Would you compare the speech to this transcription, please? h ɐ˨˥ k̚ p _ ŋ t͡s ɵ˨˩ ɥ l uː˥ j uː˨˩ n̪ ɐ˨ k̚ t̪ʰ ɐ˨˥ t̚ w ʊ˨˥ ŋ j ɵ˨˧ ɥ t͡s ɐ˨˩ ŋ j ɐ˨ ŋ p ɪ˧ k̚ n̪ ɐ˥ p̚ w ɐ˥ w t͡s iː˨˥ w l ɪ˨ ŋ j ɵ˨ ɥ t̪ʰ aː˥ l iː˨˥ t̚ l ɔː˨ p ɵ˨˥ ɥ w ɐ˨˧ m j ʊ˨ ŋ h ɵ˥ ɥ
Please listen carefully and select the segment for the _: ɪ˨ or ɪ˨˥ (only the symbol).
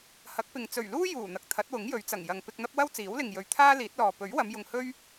ɪ˨